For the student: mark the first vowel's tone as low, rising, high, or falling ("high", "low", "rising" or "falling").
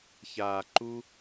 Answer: low